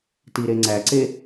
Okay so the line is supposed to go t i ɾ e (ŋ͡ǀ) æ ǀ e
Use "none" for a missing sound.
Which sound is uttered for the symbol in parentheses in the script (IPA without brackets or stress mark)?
ŋ͡ǀ